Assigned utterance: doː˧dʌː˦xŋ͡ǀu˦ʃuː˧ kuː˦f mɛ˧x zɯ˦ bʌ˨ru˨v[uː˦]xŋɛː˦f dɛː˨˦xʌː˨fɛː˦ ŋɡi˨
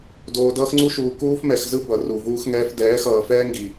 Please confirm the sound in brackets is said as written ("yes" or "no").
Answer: yes